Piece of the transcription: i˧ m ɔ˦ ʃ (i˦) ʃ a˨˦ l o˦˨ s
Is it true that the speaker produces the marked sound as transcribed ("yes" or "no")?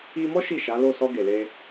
no